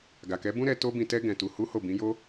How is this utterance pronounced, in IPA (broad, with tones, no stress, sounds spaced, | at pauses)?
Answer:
ɡ a˨ k ɛ˨˦ b ũ˦ ɾ ɛ˧ t o˦ b ĩ˧ t ɛ˦ ɡ ɛ̃˧ t u˧ h u˦ h o˦˨ b ĩ˨˦ j o˦